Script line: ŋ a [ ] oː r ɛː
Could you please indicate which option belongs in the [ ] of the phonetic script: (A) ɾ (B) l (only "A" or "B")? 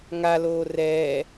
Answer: B